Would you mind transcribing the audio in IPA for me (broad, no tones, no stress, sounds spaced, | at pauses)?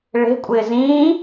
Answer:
ɭ e̤ kʷʼ ɪː z ĩː